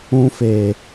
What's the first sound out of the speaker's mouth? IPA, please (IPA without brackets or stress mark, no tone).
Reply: ũ